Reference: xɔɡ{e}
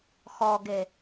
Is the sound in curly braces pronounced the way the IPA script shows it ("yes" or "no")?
yes